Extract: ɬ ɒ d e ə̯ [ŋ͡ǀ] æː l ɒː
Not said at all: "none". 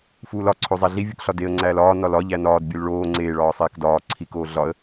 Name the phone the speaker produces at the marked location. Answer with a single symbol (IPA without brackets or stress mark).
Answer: ŋ͡ǀ